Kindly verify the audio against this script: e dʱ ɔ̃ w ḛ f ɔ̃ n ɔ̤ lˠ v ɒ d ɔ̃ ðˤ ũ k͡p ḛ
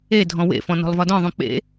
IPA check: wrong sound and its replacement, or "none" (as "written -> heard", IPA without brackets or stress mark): none